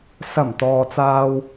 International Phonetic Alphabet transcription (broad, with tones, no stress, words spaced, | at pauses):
sɐ˨˩m t̪ɔː˨t͡saː˧w